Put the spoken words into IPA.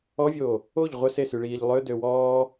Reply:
ɔ vʲ oː | o ʎ ʁʷ œ s e s y ɭ iː ʎ lˠ ø d ø w ɔː

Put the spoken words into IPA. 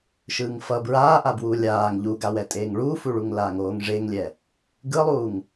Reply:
ʃ ɯː ŋ f ʌ b ɹ aː ʔ a b w uː lʲ aː ŋ ʎ u ɡ a w ɛ tʼ eː ŋ ɭ uː f u ɭ u ŋ l aː ŋ oː ŋ ʐ e ŋ lʲ ɛ | ɡ ɯ lˠ uː ŋ

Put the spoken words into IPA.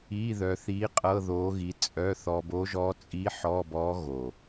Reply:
i˧˥˧ ð œ˧ θ i˧˥ qʼ ɤ˧˥˧ ð o˧˥ ɣ i˧ t͡sʼ œ˧˥˧ θ ɔ˧ b o˧˥ ʒ ɔ˧˥ t͡sʼ i˧˥ ħ ɔ˧˥˧ b ɔ˧˥ ɣ o˨˩

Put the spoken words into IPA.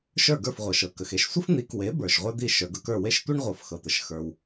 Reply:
ʃ ə˞˥˩ ɡ ə˞˥˩ f ʁʷ ɤ˩ ʃ ɤ˩ k ə˩ x e˧ ʃ sʷ ə˥ f n̪ i˩˥ k w e˩˥ b ə˞˩ ʃ ʁʷ ə˞˥ d̪ i˥˩ ʃ ə˞˩ ɡ ɤ˧ k ə˞˥˩ w e˥ ʃ tʷ i˥ ɳ ʁʷ ɤ˩˥ f x ɤ˩ t̪ ə˩ ʃ x ə˞˩ w

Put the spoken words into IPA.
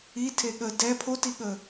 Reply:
i tʰ e ɠ ə d ɛ pʰ o t i ɠ ə

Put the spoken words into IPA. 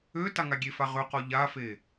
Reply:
ø t a ŋ a ɡʲ e f a ʁ ø q ɔ ʎ a f e

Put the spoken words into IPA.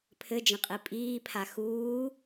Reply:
pʰ ɘ d͡ʒ ə̃ qʼ i pʼ iː pʰ a x uː

